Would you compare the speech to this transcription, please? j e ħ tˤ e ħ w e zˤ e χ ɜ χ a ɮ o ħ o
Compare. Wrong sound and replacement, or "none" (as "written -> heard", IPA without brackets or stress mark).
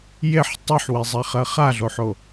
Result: none